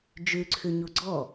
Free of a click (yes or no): no